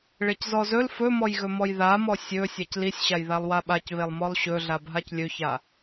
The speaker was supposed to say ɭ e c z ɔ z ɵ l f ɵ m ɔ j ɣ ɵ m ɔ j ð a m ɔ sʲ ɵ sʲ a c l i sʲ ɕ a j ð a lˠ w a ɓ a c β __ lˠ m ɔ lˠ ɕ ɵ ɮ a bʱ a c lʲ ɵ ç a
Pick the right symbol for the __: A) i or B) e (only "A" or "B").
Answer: B